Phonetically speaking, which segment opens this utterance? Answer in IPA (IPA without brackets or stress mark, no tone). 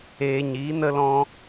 eː